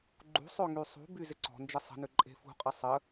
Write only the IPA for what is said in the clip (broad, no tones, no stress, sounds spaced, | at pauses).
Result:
ɡ͡ǃ ṳ sˤ ø ŋ y sˤ ṳ b y z ɪ ǀ ɔ̤ n d͡ʒ ə sˤ ə̤ n ʏ ǃʼ e̤ f ṳ qʼ ɪ sˤ ə